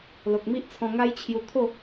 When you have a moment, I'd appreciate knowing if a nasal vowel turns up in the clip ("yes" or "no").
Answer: yes